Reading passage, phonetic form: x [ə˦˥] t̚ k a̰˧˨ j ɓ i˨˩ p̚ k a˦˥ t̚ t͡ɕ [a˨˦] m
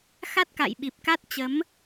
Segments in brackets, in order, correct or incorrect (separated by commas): incorrect, incorrect